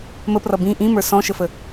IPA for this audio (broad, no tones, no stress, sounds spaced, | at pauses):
m ə p r ʌ b ĩ ʔ ĩ m ə˞ s ɔ̃ ʃ ə f ə